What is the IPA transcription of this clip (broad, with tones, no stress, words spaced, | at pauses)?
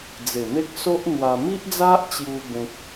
d͡ze˨˩n̪e˦k̚ so˦ʔn̪wa˧ mi˦ʔd͡za˦ʔt͡ɕju˧ bẽ˦k̚